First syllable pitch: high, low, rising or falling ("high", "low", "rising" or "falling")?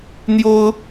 high